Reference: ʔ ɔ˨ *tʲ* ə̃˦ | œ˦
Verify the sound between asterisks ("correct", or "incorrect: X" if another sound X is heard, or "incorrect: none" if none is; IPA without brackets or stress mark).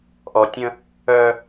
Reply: correct